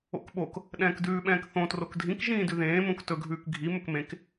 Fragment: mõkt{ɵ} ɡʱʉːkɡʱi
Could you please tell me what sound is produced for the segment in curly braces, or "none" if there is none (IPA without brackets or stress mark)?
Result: ɵ